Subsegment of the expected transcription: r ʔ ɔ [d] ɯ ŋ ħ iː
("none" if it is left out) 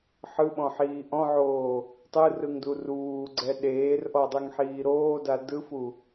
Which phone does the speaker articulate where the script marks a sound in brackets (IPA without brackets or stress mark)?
dˤ